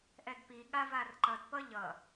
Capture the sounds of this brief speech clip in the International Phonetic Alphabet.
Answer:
ʔ ɛ d p i ɠ a v a r ǃ ʌ d p ʌ ʎ ʌ

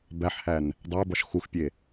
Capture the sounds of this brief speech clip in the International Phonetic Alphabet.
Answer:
b æ ħ h æ n | dˤ æ b ɒ ʃ x u x pʲ e

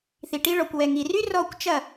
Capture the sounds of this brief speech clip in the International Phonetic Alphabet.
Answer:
θ i˨ ʈ i˧ ɭ ɔ˨ kʷ w ɛ˨ ŋ i˨ r y˦ r ɔ˦˨ kʷ t͡ʃ ɐ˦˨

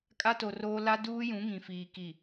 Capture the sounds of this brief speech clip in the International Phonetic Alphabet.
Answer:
kʼ a˦ t o˨ r oː˦ l a˦ d uː˦ j ũ˨˦ ŋ ĩ˨ f iː˨ k i˨

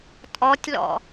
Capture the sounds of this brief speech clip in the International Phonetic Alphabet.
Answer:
tʼ ɔ tʲ l ɔ̰

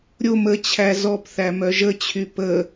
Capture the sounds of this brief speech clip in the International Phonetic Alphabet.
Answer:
ɾʲ o m ə t͡ɕʰ æ z ɔ p θ æ m œ ʒ ə t͡ɕʰ y p ə

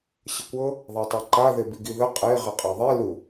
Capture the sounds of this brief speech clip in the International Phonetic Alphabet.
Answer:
ɕ ə kʷ ɤ | ðˤ a tˤ a ǃ a ð e b i ɡ i ð ə qʼ e ʁ ɛ qʼ e ðˤ e l u

